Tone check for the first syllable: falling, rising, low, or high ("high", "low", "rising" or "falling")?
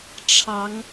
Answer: rising